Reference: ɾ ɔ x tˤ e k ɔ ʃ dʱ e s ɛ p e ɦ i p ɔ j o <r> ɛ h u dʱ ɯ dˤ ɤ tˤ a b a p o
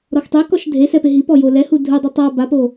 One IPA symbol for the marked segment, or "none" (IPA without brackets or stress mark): l